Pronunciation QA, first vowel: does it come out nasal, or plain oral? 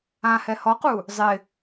nasal